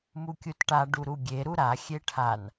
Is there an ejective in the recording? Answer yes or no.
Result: no